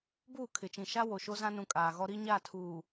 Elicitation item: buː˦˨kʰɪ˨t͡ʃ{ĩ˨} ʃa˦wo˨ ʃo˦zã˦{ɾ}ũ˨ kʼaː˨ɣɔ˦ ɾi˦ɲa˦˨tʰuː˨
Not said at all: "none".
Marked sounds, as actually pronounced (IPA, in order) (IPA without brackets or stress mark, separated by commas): ĩ˨, n